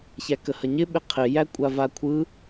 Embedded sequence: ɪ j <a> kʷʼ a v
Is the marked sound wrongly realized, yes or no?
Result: yes